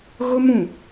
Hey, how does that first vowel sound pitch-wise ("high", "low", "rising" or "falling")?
high